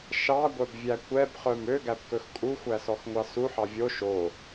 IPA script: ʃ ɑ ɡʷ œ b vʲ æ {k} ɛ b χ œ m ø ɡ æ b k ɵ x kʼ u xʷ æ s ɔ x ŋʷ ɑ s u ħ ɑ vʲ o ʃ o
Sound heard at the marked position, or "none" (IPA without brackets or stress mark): kʷ